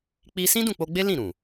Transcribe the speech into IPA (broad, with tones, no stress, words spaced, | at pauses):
k͡pi˦ sĩ˦dũ˦˨k͡po˧ɡ͡be˦ lĩ˦˨ɾũ˨